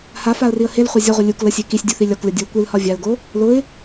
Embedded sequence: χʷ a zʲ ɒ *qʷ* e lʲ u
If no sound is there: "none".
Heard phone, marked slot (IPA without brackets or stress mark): ʁʷ